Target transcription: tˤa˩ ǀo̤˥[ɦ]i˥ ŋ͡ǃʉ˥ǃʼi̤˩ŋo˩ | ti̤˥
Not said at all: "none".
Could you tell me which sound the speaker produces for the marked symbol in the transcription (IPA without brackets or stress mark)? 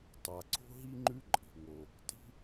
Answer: ɦ